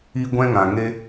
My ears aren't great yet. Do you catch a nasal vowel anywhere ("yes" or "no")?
yes